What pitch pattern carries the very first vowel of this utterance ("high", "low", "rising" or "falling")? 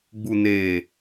low